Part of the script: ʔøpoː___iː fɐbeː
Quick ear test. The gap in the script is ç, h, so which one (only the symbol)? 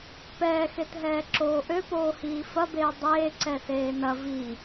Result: h